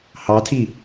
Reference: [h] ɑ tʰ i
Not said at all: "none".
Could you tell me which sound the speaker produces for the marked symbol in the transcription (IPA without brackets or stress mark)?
h